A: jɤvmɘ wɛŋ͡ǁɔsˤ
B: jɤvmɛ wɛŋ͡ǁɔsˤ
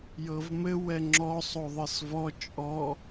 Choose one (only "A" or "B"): A